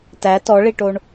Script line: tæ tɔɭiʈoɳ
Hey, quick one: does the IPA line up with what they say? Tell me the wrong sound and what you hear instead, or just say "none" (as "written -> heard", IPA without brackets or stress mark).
none